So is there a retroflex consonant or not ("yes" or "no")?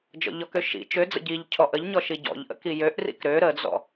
no